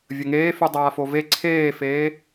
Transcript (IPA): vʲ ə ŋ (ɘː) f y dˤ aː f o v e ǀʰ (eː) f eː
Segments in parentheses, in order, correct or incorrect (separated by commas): incorrect, correct